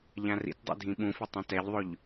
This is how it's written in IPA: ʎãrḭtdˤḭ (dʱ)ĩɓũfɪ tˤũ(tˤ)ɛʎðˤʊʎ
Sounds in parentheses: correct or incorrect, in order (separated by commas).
correct, incorrect